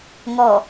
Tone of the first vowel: low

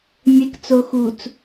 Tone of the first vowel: low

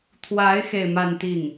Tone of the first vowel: rising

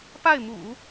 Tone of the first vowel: falling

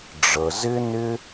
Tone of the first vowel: low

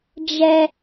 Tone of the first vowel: high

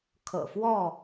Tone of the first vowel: low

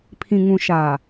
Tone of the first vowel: low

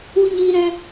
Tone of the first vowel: high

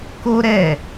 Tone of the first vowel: high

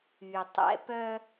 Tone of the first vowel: low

